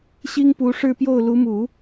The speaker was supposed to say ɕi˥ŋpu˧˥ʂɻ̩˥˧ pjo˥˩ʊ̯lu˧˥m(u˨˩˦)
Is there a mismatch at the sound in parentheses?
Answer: no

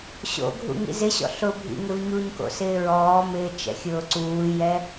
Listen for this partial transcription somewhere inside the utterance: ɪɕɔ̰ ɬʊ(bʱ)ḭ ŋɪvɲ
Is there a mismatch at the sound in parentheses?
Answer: no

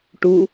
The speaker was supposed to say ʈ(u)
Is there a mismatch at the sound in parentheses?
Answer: no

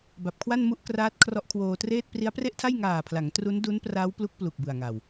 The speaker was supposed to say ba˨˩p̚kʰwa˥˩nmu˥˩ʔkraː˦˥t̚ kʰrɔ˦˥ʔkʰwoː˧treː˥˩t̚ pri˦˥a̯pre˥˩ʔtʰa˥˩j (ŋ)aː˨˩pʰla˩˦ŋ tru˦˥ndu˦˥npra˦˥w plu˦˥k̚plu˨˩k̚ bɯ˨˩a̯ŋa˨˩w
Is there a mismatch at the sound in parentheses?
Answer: no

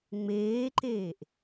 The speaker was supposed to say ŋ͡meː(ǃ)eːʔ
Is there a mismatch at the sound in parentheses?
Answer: no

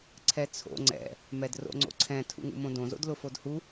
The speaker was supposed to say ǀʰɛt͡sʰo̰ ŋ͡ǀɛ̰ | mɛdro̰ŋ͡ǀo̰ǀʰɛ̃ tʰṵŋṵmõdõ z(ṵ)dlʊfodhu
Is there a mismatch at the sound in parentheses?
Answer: yes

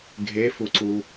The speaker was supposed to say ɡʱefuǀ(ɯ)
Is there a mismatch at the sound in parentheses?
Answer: yes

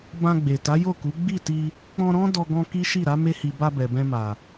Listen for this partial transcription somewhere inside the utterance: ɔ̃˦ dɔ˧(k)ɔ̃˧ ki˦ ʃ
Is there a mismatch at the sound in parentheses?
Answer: yes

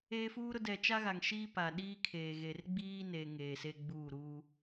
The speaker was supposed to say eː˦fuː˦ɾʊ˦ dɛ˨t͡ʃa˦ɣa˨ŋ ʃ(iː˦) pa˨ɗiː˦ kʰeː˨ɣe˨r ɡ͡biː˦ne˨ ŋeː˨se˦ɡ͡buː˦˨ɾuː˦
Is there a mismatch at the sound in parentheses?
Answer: no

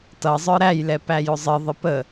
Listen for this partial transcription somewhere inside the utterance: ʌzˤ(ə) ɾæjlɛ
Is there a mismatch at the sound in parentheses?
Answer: yes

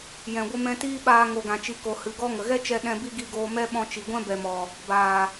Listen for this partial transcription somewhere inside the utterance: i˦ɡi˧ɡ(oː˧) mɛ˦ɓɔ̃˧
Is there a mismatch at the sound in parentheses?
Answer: no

